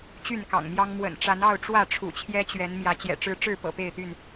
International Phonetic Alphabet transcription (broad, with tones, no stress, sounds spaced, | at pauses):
t͡ɕ y˥˨ n k ɑ̰˨˩ ŋ m j ɑ˦ ŋ m w ə̰˨˩ n ʈ͡ʂ a˨˦ n ɑ˥˨ ʊ̯ ʈ͡ʂ w ä˥˨ ʈ͡ʂʰ ṵ˨˩ t͡ɕʰ j ɛ˦ t͡ɕ ɥ ɛ˨˦ n m j ä˨˦ t͡ɕ j ɛ̰˨˩ ʈ͡ʂ ɻ̩˦ ʈ͡ʂ ɻ̩˥˨ p ɤ̰˨˩ p e˥˨ ɪ̯ t̪ y˥˨ n